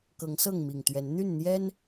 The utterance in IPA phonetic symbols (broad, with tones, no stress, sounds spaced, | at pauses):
k ɤ˨˦ ŋ s ɤ˥˨ ŋ m i˨˩ ŋ t̪ ɥ ɛ˨˦ n n̪ y˥˨ n n̪ j ɛ˦ n